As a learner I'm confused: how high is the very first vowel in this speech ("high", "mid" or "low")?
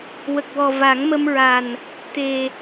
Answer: mid